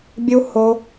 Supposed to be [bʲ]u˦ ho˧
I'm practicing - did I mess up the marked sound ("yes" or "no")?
no